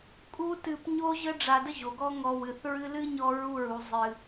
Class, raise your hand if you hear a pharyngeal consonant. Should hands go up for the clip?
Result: no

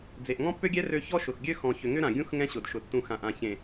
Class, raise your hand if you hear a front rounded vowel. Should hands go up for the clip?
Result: yes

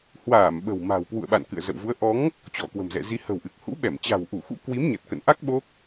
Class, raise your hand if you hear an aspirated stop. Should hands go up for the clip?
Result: no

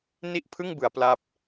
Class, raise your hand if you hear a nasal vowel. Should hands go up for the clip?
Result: no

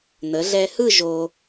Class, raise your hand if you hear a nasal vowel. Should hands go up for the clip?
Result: no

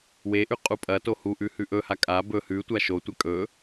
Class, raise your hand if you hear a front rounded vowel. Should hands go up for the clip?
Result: no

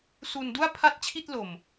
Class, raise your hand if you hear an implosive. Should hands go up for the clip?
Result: no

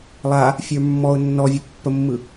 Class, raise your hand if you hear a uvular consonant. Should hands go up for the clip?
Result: no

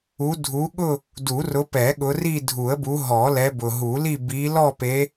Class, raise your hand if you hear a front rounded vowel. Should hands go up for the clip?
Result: no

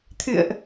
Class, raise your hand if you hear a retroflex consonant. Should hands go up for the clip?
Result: no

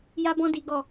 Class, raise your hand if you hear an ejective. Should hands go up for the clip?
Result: no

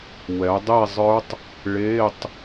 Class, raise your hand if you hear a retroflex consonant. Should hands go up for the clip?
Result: yes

